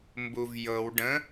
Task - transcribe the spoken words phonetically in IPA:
m b u v j ɤ w ɖ ə̃

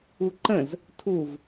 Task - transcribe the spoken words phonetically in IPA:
u ǃ ə̃ z | tʰ u v

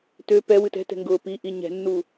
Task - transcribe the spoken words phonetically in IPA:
t ø p ɛ w ɨ t ɛ̤ t ɛ̤ ŋ ɡ ʊː p i ʔ i ɲ ɛ̤ nː uː

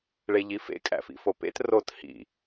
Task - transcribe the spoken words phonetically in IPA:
ɭ e ʎ i f ḛ kʼ æ̰ f ḭ f o p ḛ t r o t h ḭ

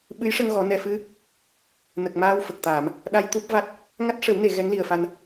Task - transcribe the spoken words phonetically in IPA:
ɓ ɨ˧˥ j ʂ ə˧ ŋ ɣ ɔ˨˩˦ n ɛ˨˩ f ɨ˧ | n ə˨˩ k̚ m aː˧ w f ə˨˩ k̚ t̪ aː˨˩˨ m | ɗ a˧ j t̪ u˦˥ p̚ v a˦˥ t̚ | ŋ a˦˥ t̚ ʂ ə˨˩˦ w n e˨˩˨ ɣ ɛ˧˥ ŋ l i˨˩ ə̯ f a˧ n

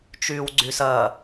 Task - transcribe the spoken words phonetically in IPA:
t͡ʃ yː w ɡ͡ǀ y s ɐː

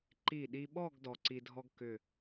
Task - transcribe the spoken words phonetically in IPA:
ǃ i˧˩ ɗ i˧ ɓ ɔ˥˧ ɡ d ɔ˧ ǀ i˧ dʱ ɔ˥ ɡ k ʏ˧˩

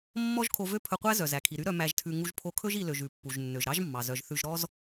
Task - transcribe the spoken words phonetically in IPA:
mː ɔ˥ ʒ kʰ o˧ v ø˥ pʰ ɵ˧ qʷ æ˥ z œ˩ z æ˩ kʰ i˩ ɾ y˥ ɾ œ˧ m æ˧ ʒ tʰ ʉ˧ ŋ u˧ ʒ pʰ o˧ kʰ ɵ˥ ʒ i˧ l ø˩ ʒ ʉ˩ pː u˩ ʒ nː ø˩ ʒ ɾ ɑ˥ ʒ mː ɑ˩ z œ˩ ʒ θ ʉ˧ ʒ ɾ ɔ˥ z

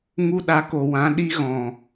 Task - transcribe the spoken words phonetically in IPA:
ŋ u˧ ɗ a˨˦ k o˨ w ã˨˦ ɗ i˧ ɣ ɔ̃˨

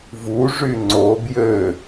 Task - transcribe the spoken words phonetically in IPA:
v u ʐ y ŋ͡ǀ o b j ø

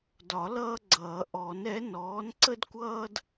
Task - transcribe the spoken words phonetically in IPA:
d ɒ˨˩˦ l ʌː˥ ɡ͡ǀ ʌː˨˩˦ ʔ ɔ˨˩˦ n ɛ˨˥ n ɔː˨˥ n ǀ ə˥ d kʷ ʌː˥ d

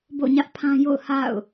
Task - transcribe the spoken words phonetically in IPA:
b o̰˦˨ ɲ ä˦ ʔ pʰ ã˦ j o̰˦˨ ʊ̯ h a̰˦˨ ʊ̯

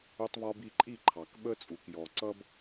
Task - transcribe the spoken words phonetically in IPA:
ʊ˧ tˤ β ɒ˧ b i˥˩ ǃʼ i˥˩ ǃʰ ɑ˩ k ɓ ə˧ t͡sʼ u˩ k j ɔ˩ ǀ ʌ˥ b

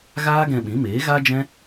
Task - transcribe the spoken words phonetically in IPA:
ɣ aː˦ ɡ ɛ̃˧ ɓ ĩ˨˦ m eː˨˦ ɣ a˦ d͡ʒ ɛ̃˦

